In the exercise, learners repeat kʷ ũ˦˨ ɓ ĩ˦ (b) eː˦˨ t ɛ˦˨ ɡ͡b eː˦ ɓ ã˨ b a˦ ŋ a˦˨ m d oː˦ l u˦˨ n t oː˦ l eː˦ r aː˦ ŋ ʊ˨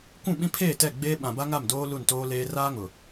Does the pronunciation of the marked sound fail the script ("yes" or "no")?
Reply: yes